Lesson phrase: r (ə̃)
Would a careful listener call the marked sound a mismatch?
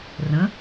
no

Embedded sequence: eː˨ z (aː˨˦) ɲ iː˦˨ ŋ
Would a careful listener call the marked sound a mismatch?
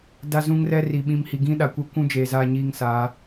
yes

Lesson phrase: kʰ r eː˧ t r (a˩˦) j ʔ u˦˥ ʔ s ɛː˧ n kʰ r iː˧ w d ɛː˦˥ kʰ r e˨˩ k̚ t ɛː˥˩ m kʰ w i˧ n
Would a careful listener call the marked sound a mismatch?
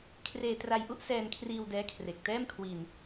yes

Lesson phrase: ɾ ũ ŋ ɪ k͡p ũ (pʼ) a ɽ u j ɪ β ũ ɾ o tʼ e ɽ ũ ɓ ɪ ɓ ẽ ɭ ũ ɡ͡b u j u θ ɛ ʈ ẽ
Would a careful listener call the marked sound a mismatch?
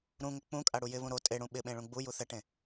yes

